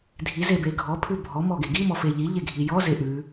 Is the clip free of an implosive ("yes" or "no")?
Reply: yes